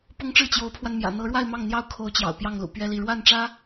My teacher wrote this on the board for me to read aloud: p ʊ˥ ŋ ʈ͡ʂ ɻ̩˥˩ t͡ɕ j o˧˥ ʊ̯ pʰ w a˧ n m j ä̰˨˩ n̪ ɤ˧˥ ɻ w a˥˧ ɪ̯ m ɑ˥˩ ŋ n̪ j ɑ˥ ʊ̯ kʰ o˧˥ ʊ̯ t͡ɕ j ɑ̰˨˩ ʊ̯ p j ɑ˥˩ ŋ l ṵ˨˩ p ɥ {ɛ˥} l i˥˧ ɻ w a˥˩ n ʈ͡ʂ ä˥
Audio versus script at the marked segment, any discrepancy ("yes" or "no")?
no